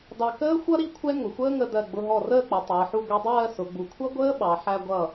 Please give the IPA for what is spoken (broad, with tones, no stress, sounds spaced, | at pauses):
d ɑ˧ k əː˥ xʷ ʌ˥ ɾ i˥˧ kʷʰ ɛ˥ ŋ ʊ˩˧ xʷ əː˥ ŋ ə˧ d ɜ˧˩ ɡ͡b ʊ˧ ɦ ɔ˧˩ r əː˥˧ k͡p ʌ˩˧ tˤ əː˩˧ ħ u˥˧ ɡʷ i˧ dˤ ɜː˥˧ s ʊ˩˧ ɡ͡b u˩˧ kʷʰ ʌ˥ ɡʷ əː˥ ɓ ɑ˩˧ ħ æ˧ ɡʷ ʌ˧˩